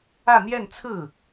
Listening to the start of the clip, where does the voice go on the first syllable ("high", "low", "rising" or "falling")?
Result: falling